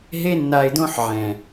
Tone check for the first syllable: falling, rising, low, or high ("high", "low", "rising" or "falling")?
high